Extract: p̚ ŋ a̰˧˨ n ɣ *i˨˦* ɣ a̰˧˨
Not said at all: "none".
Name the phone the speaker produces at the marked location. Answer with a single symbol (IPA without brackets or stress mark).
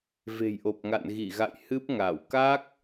i˧˩